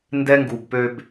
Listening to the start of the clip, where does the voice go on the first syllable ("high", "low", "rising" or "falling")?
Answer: high